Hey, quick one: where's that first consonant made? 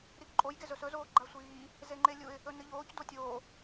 tongue tip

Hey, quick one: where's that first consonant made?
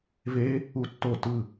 lips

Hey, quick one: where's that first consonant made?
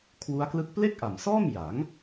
velum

